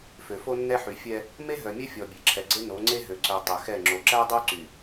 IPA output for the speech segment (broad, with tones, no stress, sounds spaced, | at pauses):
f ø˨ f o˦ nː ɛ˦ ħ y˨ fʲ ɛ˦ | m e˦ ɦ œ˨ mʲ ɛ˦ fʲ ɔ˨ bʲ e˨ ǁʰ ɛ˨ ɡ͡ǀ e˦ n o˨˦ ŋ͡ǀ e˦ ɦ ø˨ ǀ œ˨ tˤ ø˨ x ɛ˦˨ ŋ͡ǁ o˨ ǁ æ˦ dˤ o˦ ǀ y˨